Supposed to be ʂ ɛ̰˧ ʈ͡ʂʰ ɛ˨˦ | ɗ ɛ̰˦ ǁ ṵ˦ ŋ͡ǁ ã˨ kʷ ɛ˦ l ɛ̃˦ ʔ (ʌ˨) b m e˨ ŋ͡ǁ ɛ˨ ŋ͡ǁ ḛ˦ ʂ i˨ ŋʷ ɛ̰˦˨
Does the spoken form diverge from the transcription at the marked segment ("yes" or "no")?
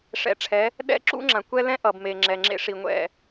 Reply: no